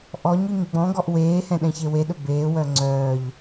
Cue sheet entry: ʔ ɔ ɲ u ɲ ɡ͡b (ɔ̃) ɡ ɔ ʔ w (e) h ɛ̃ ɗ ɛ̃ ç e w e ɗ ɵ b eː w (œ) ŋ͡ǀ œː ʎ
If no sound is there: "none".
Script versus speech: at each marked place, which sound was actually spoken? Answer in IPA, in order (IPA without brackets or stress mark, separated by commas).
ɔ̃, eː, œ